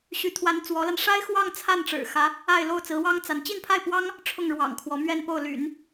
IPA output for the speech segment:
ɕ y˧˥ t̪ʰ w a˧˥ n t͡s w ɔ˧˥ l a˧ n ʂ a˥ ɪ̯ x w ɑ˥˧ ŋ t͡sʰ a˥˩ n ʈ͡ʂ ɻ̩˨˩ x ä˧˥ | a˥˧ ɪ̯ l o˥˩ ʊ̯ t͡s ɹ̩˧˥ w ɑ˥ ŋ t͡s a˧˥ n t͡ɕ i˥˧ n pʰ a˥˩ ɪ̯ p w ɑ˥ ŋ | ʈ͡ʂʰ ʊ˥˩ ŋ ɻ w ɑ̰˨˩ ŋ kʰ w ɔ˧˥ m ɥ ɛ˥˧ n p o˥˩ ʊ̯ l y̰˨˩˦ n

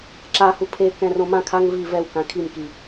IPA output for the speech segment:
ǁ a h u pʰ e k ɛ̃ r õ m ã kʰ a ŋ v i v ɛ w k ã kʰ i m k i

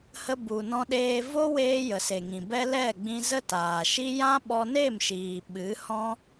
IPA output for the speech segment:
h ə˧ b u˨ n ɔ̃˧ ɗ eː˧ v o˦ w eː˧ j ə˨ s e˨ ŋ ĩ˨ b ɛ˦ l ɛ˦˨ ɡ͡b ĩ˧ z ə˦ t aː˨ ʃ i˦ j ã˦ ɓ ɔ˧ n e˦˨ m ʃ iː˨ ɓ ɨ˨˦ h ɔ̃˦

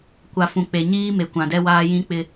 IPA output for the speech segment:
kʷ a˨ f ũ˨ k͡p e˨ ɲ iː˦ m e˨ kʷ ã˨ d ɛ˦ w aː˦ j ĩ˦ k͡p ɪ˦

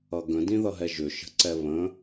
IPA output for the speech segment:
ʌ ɡ ə̃ d ĩ ð ʌ ɦ ɛ ʒ ʏ ʃ ə̤ ǀ ɛ β ə̃

